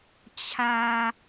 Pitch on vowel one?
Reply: high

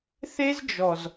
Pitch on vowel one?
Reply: high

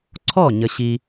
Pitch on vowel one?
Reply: falling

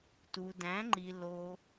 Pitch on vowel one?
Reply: low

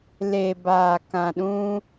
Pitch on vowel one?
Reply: low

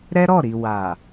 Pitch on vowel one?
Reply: high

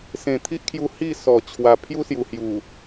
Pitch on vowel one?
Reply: low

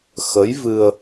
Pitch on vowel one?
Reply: rising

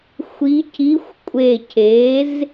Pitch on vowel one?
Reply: rising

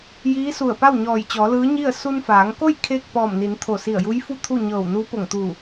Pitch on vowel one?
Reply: rising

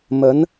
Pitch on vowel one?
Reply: rising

